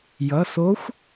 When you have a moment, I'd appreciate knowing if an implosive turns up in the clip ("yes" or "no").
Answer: no